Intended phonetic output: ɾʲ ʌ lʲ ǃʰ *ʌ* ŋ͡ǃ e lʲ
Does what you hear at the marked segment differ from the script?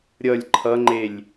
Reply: no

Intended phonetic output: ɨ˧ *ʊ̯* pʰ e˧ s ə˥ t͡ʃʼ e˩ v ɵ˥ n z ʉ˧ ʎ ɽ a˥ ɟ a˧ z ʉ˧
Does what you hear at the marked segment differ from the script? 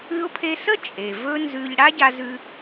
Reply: no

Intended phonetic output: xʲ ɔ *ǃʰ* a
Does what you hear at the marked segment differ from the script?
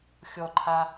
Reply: no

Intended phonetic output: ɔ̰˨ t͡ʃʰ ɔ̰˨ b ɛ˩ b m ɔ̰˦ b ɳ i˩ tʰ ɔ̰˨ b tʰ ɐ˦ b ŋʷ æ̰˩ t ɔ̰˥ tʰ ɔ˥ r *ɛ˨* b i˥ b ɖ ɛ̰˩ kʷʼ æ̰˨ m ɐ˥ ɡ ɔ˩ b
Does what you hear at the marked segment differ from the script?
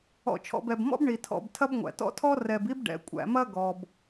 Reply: no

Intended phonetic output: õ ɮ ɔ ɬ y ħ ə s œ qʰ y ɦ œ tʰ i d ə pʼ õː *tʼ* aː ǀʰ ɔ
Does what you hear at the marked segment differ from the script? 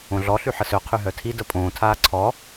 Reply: yes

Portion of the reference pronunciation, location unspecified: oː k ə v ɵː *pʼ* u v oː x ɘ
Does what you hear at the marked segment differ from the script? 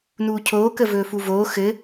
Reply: yes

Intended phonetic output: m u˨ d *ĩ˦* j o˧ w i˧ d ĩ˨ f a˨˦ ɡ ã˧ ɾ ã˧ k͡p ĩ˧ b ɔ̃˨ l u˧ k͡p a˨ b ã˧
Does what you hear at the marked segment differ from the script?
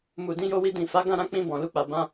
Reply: yes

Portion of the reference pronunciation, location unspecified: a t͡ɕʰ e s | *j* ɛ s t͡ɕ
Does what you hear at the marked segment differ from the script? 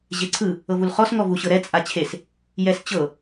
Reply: no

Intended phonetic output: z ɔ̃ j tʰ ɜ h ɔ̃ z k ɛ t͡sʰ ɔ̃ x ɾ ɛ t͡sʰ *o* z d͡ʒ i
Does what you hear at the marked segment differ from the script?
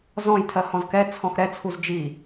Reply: yes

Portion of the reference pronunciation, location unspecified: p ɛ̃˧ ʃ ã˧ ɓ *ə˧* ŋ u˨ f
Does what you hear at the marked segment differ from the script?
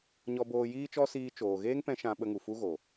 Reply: no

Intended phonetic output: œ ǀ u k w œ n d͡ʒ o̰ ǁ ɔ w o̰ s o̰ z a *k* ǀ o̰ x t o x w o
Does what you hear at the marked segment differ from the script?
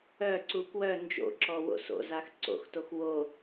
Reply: yes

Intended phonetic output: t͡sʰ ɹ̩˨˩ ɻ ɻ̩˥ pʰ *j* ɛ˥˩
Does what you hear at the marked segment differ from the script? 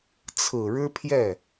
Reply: no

